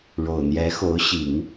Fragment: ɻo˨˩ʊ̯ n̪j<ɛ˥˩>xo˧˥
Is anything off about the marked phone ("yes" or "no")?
yes